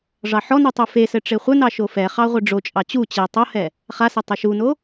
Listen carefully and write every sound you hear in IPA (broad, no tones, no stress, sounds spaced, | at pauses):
ʐ ɑ ħ ɔ n u tˤ u f e s ɘ ʈ͡ʂ e χʷ ɘ n ɑ ʃ o f ɛ χ ɑ ʁʷ ɘ ɖ͡ʐ o t͡ʃʼ ɑ t͡ɕ u t͡ɕ ɛ tˤ o h ɛ | χ a s ɘ tˤ ɘ ʃ u n o